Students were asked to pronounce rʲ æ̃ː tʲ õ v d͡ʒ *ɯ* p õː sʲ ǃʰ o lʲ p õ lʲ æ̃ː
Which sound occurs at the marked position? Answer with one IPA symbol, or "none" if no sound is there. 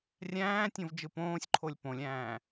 ɯ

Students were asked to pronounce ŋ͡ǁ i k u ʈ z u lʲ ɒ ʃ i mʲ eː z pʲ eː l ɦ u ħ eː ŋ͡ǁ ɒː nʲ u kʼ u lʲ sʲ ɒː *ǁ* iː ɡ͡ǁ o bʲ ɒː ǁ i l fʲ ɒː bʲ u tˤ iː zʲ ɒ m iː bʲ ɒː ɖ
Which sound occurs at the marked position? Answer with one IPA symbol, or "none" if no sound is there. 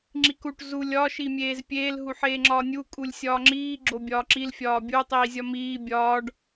ŋ͡ǁ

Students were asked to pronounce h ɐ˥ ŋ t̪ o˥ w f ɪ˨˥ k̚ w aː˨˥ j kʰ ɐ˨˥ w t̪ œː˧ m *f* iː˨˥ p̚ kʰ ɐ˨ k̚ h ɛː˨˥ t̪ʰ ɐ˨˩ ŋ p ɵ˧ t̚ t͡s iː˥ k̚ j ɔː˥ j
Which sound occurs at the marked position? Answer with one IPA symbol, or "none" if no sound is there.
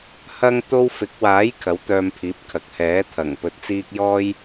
pʰ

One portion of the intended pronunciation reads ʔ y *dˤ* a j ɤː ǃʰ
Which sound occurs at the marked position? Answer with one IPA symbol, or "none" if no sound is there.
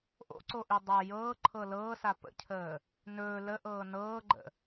dˤ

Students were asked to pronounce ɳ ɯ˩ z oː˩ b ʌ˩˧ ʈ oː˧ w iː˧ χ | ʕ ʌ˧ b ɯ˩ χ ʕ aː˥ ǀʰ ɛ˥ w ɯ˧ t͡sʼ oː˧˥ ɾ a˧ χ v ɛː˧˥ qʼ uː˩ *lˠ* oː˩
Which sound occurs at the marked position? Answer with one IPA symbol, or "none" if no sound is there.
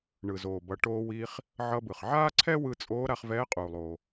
lˠ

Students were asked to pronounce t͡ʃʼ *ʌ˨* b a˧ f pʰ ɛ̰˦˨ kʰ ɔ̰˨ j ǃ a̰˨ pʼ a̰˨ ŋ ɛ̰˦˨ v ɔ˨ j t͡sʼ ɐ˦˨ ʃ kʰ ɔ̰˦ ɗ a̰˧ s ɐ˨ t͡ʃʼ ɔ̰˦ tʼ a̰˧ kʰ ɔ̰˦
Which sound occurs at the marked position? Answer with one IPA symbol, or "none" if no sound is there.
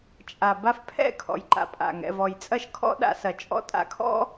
a˨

